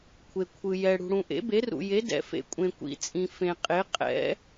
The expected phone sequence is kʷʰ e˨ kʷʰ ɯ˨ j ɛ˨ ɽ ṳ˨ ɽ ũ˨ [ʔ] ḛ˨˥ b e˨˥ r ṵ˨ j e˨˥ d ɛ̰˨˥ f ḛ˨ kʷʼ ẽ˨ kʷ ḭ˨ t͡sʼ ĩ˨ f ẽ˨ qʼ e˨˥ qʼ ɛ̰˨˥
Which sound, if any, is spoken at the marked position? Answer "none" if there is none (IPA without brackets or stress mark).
ʔ